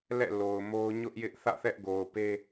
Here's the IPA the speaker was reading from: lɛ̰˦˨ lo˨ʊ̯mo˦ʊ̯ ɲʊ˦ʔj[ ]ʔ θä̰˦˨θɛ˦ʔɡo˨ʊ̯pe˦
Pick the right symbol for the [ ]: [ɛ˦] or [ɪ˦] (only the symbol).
ɪ˦